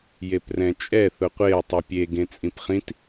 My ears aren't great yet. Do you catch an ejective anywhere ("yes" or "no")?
yes